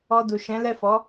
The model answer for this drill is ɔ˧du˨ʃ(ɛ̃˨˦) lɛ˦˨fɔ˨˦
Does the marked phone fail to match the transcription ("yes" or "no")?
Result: no